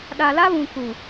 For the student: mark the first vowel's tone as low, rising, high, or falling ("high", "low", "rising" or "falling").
low